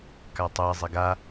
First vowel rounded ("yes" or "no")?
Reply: no